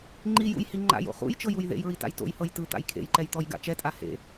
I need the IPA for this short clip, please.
ŋ͡ǃijṵjhi ŋ͡ǃa̰jo̰ χṵjt͡ʃɤjuj ðḛjɹita̰j to̰jhɤj tɯt̪a̰j kʰḛjǃɛjt̪ɔjɡa̰ t͡ʃɛtʼa hḛ

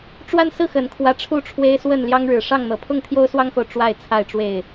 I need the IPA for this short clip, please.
ʈ͡ʂwa˦nsɹ̩˥˨xə˨˩nkʰwä˨˦ ʈ͡ʂʰu˥˨ʈ͡ʂʰwe˦ɪ̯swə˥˨n ljɑ˦ŋɻɻ̩˨˩ʂɑ˥˨ŋn̪ɤ˨˦ pʰʊ˥˨ŋt̪ʰjo˦ʊ̯swɑ˦ŋxo˨ʊ̯ ʈ͡ʂwa˥˨ɪ̯t͡sʰa˥˨ɪ̯ʈ͡ʂwe˥˨ɪ̯

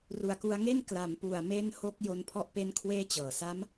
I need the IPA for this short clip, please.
ru˨˩a̯ku˧a̯ŋe˥˩n kla˩˦mpu˨˩a̯me˦˥n ho˦˥k̚jo˧npʰɔ˦˥ʔ pe˦˥n kʰweː˥˩t͡ɕɤː˨˩ sa˦˥m

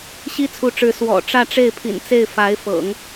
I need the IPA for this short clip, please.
ɕi˥t͡sʰu˧˥ʈ͡ʂɻ̩˧˥ swɔ̰˨˩ ʈ͡ʂä˥˧ʈ͡ʂe˥˩ɪ̯pʰḭ˨˩nt͡se˥˩ɪ̯ fa˧˥ɪ̯fɤ̰˨˩˦ŋ

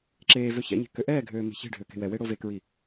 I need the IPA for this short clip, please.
ǁeːvø çɛ̰ɲe̤ køʔɛːɡʱøː me̤çe̤ɖʱø ke̤wɛwe ɽovekɹi

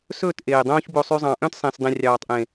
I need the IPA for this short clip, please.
sɵː˦˨t ʔeː˨ dˤõː˦çbo˧sˤy˧ zˤɑ̃˨ʔœ̃˦tsˤẽ˨s dˤẽ˨rʲɑː˨tˤʔẽ˨

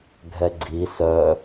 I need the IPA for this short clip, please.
ɡʱɛɡ͡ǀi sœ

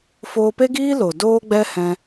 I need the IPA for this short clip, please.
foː˧pe˦ɡiː˦lo˨ doː˦ɡ͡bɛ˦ hɛ̃˧

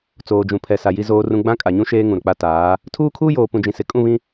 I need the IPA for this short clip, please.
t͡soː˨d͡ʒũ˨ pʰɛ˨sa˨ ji˦zoː˦rũ˦ ɡ͡bã˦kʼa˨ɲũ˦ ʃeː˦ŋũ˨ɾʊ˨k͡pa˦ taː˨˦ | tʰuː˦kʰuː˦joː˨ pũ˨d͡ʒĩ˨sɪ˨ kʼũ˦˨βĩ˦

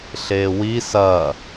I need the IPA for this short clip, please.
ɬeːwi sɐ

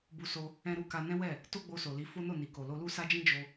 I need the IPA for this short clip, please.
bu˧so˧ | ɛ̃˧ɾu˧ ka˧nɛ̃˦wɛ˦˨ | to˦ɡ͡bo˧so˨li˨˦ fo˦no˦˨ni˨ko˨ lo˧lu˦sa˦d͡ʒĩ˦ d͡ʒo˧

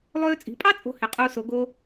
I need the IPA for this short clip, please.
lˠøː˧t͡sʼi̤˩˧pʼɑ˥ t͡sʼo̤˧ he˩˧qʼuː˧so˩˧ ɡo˧

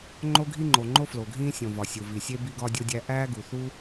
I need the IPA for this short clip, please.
ŋ͡ǃo˦ɡʱi˦ŋ͡ǃo˩ŋ͡ǃo˦ flo˩ɡʱĩː˦ sʲõ˩vɒ˩ sʲu˩vi˩sʲe˦ bi˦ɡɒ˦dʲo˦dʲæ˦ ʔæː˦ɡu˩θu˦

